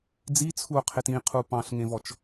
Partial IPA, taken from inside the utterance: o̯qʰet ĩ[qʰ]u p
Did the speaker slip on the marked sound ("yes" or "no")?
no